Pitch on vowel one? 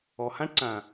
low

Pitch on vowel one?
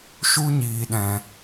high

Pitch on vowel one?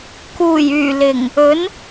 low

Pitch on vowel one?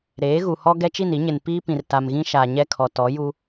rising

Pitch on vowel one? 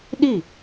falling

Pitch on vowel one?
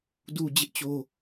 low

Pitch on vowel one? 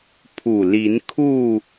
low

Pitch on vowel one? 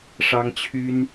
high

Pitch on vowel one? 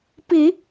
low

